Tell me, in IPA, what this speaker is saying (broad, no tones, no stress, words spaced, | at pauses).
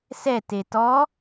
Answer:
sɛte tɔ